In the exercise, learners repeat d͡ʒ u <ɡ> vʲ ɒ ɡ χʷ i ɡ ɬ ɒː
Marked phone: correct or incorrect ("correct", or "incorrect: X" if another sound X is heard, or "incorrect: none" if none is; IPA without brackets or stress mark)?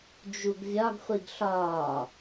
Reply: correct